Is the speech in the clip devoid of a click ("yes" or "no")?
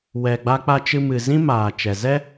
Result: yes